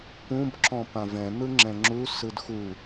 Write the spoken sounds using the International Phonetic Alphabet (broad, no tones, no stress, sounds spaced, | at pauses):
p ũ b ǁ ɔ̃ p ã v ɛ̃ n̪ ɯ ŋ͡ǁ ɛ̃ ŋ͡ǁ u s ɯ d x u